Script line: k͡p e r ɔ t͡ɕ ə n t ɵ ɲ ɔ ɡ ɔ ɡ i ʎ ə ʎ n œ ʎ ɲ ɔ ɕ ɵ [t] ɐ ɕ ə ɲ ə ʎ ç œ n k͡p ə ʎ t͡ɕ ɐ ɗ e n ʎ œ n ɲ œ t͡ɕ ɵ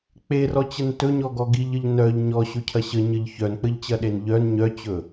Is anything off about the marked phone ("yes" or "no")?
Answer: yes